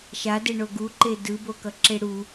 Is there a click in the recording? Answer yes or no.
yes